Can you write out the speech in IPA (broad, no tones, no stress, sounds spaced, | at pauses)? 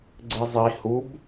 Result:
ɡ͡ǀ ɨ zˤ i h u b